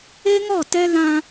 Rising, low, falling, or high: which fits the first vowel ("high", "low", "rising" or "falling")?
high